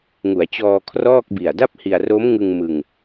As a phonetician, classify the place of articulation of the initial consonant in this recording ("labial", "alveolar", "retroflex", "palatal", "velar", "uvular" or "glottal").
velar